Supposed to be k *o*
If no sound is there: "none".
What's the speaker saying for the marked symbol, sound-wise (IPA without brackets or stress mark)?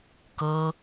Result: ɤ